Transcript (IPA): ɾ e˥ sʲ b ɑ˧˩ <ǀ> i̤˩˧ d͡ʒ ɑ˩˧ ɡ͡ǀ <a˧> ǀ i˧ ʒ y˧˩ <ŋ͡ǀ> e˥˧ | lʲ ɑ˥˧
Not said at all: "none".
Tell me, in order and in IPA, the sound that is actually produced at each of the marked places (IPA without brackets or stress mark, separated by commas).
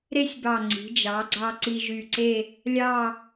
ŋ͡ǀ, ɑ˧, ǀ